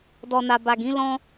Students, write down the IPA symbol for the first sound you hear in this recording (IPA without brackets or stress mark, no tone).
d